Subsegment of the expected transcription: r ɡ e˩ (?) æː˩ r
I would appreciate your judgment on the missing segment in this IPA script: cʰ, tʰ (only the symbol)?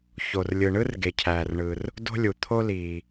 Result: cʰ